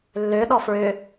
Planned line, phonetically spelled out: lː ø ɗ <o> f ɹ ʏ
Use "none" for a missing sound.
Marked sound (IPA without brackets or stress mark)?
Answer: ɔ